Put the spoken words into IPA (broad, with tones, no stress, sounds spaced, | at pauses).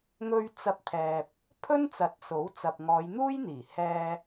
ŋ ɵ˧ ɥ t͡s ɐ˧ p̚ t̪ʰ ɛː˨ p̚ | pʰ ɵ˥ n t͡s ɐ˨˥ t̚ s o˨˥ w t͡s ɐ˨ p̚ ŋ ɔː˨˧ j n̪ uː˥ j n̪ iː˨˩ h ɛː˧